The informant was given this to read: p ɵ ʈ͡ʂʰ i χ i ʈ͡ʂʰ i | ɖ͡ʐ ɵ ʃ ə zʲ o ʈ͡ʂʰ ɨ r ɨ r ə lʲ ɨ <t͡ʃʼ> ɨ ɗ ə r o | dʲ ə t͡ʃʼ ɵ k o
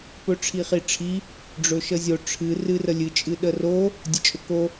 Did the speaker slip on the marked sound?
no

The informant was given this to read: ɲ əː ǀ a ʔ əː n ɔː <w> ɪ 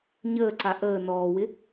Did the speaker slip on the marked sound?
no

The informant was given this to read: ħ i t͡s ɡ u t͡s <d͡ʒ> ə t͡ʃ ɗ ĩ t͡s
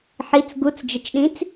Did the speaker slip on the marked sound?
no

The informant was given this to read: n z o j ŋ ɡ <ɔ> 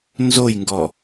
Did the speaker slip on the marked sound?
no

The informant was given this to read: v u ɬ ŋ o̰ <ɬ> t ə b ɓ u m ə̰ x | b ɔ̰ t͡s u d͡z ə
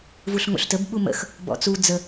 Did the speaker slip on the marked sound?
no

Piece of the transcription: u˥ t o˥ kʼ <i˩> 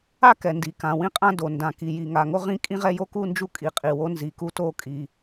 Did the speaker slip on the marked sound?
no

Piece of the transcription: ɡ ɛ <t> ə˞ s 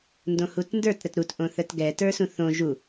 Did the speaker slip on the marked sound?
no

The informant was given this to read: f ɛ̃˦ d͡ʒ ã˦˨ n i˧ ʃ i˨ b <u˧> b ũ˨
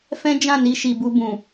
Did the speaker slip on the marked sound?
no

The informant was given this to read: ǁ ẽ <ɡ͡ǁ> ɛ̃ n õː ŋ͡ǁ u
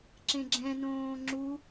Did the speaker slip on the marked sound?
no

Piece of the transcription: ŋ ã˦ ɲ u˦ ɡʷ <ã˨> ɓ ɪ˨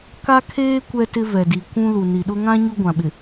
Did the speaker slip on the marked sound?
no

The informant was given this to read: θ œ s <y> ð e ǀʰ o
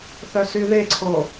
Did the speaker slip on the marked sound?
no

